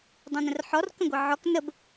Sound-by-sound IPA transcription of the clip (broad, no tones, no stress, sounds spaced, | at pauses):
dˤ õ n ə̃ r ħ ɔ r k ə̃ ɡʷ ɨ ʕ ɔ k n ə b